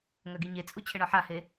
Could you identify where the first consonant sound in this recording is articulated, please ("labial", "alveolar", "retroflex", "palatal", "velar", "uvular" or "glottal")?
velar